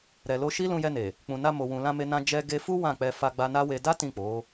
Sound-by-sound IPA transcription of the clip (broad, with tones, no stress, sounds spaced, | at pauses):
ɾ ɛ˨ l o˧ ʃ i˦ l ũ˧ j ɛ˧ n e˨ | k͡p ũ˨ n a˧ m o˨ w ũ˨ l ã˧ m e˧ n ã˧ d͡ʒ ɛ˧ ɡ e˧ f u˦ w ã˦˨ k͡p ɛ˧ f a˧ ɡ͡b a˧ n a˦ w e˧ d a˦ t ĩ˦˨ k͡p o˨˦